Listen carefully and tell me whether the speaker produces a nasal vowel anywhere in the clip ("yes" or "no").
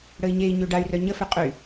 no